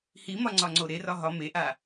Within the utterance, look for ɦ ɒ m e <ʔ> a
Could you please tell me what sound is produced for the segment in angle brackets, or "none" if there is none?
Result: ʔ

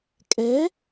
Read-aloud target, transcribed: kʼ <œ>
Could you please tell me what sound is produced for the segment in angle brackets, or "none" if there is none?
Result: ɛ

